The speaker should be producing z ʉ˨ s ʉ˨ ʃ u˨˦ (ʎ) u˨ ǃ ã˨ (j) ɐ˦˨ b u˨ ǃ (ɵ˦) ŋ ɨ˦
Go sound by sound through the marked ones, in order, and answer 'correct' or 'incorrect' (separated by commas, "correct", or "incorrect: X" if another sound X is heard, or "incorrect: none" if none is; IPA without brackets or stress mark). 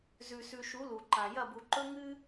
incorrect: l, correct, correct